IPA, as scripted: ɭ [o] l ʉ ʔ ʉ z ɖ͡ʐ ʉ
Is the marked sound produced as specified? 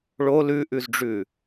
yes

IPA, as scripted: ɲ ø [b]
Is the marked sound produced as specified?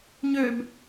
yes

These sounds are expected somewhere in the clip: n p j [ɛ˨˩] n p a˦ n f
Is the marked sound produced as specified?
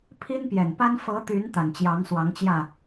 yes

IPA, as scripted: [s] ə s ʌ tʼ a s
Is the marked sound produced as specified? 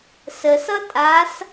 yes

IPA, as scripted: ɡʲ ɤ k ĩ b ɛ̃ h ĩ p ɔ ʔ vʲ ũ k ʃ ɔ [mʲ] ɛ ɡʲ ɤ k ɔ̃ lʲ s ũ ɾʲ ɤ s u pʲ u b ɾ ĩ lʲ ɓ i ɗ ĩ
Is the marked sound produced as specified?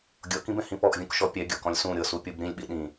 no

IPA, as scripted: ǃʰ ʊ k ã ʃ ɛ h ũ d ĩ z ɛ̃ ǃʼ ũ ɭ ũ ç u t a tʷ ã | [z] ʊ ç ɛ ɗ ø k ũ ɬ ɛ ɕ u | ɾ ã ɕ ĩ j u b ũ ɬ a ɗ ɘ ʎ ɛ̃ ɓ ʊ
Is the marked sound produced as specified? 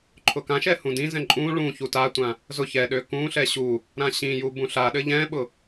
yes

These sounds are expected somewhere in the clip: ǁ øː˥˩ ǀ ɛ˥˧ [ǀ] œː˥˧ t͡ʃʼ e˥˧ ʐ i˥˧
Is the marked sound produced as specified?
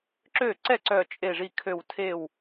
yes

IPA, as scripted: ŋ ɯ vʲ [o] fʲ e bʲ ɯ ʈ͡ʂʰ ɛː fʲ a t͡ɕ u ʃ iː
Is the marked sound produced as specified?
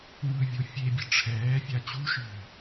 yes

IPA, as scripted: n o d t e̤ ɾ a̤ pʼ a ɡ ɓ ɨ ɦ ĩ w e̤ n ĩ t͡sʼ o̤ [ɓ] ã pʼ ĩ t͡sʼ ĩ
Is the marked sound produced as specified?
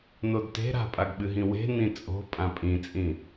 no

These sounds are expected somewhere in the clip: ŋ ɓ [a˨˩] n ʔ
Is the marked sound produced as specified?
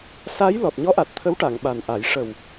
yes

